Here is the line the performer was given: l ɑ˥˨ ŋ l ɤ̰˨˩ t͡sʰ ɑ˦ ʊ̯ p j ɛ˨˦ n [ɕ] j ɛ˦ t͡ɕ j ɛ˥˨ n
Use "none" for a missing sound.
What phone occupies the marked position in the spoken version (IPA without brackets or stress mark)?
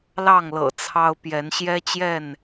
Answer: ɕ